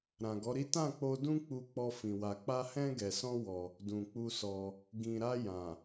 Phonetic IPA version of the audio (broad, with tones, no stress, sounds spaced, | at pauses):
ɾ ã˨ ɡ ɔ˨˦ ɾ i˦ t ã˦˨ k͡p o˧ d ũ˧ k͡p u˧ k͡p ɔ˧ f ĩ˨ w a˨ k͡p a˧ h ɛ̃˧ ɡ ɛ˨ s ɔ̃˧ w ɔ˧ | d ũ˨ k͡p u˧ s ɔ˧ | ɡ ĩ˨ ɾ a˧ j ã˨